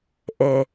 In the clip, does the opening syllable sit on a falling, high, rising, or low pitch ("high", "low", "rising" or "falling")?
low